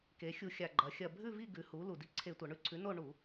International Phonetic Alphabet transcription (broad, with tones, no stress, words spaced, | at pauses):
ke˩˧xʲu˧˩˧xʲa˨˩ ɡ͡ǃɐ˩˧xʲɐ˨˩ bʱʉ˦˨vi˦˨ ɡʉ˩˥hu˩˥ lu˨˩di˦˨ ǀʰe˧˩˧tʷɐ˩˧ɳʉ˦˨ ǀʰʉ˩˥no˦˨ ɳu˧˩˧